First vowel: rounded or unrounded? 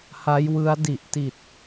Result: unrounded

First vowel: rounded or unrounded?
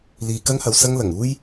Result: unrounded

